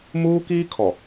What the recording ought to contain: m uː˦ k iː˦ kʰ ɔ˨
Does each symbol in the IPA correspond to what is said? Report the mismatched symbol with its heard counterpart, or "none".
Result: none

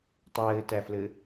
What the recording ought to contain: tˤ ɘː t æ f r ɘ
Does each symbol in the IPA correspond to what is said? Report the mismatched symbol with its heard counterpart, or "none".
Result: r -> l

